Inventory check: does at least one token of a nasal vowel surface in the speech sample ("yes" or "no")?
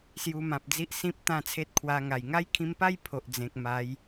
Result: yes